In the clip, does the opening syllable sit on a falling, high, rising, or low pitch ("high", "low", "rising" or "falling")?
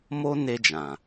high